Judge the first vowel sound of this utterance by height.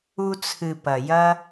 high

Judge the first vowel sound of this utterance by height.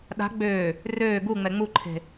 low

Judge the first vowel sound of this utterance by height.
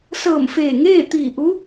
mid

